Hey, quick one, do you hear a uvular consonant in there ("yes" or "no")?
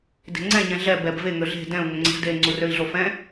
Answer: no